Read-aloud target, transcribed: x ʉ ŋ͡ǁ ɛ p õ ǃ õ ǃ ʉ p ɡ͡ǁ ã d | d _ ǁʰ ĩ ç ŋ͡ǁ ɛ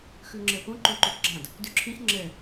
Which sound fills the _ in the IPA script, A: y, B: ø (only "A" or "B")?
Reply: A